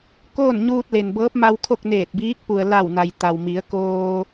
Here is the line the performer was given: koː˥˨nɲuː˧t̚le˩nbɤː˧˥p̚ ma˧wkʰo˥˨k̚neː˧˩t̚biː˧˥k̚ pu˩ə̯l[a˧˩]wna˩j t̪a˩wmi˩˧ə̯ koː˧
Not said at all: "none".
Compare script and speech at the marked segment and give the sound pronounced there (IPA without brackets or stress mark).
a˧˩